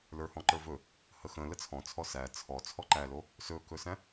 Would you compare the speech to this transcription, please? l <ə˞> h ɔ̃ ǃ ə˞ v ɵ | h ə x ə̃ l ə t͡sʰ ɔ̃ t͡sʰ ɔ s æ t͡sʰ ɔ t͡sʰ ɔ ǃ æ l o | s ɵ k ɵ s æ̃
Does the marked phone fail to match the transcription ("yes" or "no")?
no